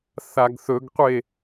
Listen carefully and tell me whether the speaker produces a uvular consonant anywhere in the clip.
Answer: yes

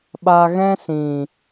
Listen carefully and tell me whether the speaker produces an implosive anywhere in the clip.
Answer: yes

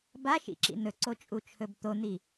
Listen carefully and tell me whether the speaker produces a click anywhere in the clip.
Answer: yes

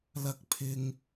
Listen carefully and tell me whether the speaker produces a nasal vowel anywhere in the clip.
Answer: no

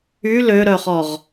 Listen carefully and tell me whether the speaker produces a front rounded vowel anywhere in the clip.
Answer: yes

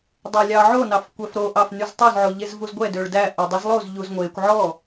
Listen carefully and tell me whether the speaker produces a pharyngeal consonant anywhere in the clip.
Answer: yes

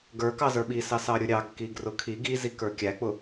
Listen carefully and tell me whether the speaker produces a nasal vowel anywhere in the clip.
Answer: no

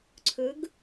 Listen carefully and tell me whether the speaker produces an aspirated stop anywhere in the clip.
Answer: yes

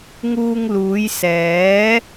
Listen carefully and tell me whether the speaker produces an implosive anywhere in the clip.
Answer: no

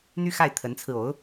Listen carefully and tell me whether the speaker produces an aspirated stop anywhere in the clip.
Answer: yes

